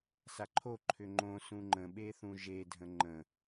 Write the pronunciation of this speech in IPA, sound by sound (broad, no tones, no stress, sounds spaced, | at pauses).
s a ǃʰ o ǃʰ ʏ ŋ͡ǃ õ s ũ ŋ͡ǃ ə̃ ɓ e θ ũ ʒ e dʱ ə̃ ŋ͡ǃ ə̃